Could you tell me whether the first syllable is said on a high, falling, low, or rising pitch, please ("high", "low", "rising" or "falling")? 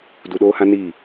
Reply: low